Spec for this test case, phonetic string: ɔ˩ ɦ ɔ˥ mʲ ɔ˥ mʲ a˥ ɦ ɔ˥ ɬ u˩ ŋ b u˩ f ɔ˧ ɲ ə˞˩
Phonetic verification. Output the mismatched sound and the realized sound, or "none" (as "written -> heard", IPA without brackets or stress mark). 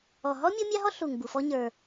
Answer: none